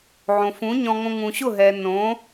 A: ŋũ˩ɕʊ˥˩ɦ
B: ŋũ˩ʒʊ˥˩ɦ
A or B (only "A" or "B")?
A